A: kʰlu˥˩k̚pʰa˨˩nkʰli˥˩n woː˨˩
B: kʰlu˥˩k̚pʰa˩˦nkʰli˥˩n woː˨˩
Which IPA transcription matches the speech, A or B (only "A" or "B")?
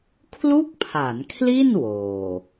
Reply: B